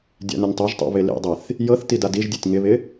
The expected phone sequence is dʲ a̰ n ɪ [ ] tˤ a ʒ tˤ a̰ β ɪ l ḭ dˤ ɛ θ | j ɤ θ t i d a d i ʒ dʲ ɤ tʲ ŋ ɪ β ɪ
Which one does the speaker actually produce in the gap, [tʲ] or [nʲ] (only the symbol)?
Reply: nʲ